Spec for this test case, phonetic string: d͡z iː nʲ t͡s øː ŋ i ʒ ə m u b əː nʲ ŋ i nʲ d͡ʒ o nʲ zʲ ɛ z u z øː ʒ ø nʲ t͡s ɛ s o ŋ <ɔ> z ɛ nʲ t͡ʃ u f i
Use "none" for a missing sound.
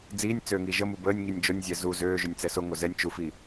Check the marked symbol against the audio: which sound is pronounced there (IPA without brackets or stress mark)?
o